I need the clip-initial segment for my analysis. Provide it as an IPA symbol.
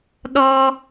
ɗ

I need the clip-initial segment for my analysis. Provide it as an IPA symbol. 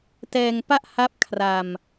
t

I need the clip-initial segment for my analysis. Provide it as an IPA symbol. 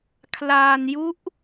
kʰ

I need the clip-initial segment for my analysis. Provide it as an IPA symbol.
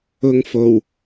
ʊ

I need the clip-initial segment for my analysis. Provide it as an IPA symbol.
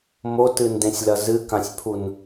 m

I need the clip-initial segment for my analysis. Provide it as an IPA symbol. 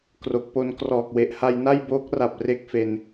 k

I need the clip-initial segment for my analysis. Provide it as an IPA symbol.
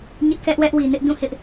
ɲ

